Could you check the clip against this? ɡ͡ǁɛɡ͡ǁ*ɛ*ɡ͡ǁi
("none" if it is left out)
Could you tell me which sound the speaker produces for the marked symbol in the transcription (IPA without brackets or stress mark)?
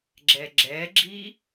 ɛ